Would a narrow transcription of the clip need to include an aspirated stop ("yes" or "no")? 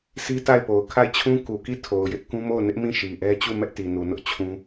yes